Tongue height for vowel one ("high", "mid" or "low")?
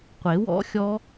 mid